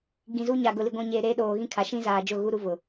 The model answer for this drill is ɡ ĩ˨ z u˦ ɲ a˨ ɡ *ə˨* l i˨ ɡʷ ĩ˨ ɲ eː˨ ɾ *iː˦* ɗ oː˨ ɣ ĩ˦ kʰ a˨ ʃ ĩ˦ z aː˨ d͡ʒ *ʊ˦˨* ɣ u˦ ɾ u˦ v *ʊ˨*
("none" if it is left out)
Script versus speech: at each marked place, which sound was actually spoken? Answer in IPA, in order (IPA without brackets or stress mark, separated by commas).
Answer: ʊ˨, eː˦, ʊ˦˨, ʊ˨